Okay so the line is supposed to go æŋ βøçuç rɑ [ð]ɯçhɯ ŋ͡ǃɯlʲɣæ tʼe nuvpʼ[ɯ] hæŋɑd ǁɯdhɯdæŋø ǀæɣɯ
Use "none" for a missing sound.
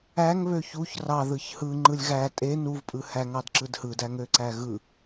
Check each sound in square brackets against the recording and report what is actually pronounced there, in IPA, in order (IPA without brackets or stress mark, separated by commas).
ð, ɯ